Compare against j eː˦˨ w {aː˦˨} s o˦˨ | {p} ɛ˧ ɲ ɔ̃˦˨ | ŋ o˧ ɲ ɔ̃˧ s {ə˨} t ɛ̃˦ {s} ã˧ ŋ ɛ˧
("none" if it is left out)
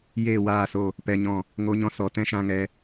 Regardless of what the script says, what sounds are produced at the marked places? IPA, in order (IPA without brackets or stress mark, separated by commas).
aː˦˨, p, ɔ˨, ʃ